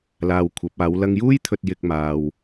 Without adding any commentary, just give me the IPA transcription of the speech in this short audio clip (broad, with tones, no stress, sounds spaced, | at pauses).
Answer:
l aː˧ w kʷʰ ɐ˨˥ p̚ aː˨˥ w l ɐ˧ ŋ j uː˥ j t̪ʰ ɵ˨ t̚ j ɪ˧ k̚ m aː˨ w